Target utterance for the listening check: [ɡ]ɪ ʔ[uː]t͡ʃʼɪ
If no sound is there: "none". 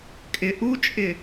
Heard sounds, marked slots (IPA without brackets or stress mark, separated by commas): kʼ, u